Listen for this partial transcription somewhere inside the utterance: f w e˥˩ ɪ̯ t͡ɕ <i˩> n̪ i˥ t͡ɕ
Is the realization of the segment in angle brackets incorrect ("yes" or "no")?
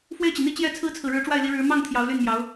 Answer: no